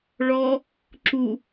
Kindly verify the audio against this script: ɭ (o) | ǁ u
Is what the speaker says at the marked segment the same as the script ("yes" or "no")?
no